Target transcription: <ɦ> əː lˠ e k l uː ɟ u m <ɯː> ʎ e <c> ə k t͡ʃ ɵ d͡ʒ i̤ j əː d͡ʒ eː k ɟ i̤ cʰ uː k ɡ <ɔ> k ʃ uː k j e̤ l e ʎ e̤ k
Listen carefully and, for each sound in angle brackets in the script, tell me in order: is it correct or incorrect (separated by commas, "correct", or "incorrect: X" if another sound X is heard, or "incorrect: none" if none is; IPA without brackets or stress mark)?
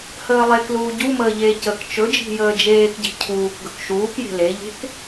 incorrect: h, incorrect: əː, correct, incorrect: ɵ